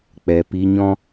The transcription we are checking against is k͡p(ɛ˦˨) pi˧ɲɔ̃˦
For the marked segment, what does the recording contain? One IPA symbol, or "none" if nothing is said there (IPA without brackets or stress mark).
ɛ˨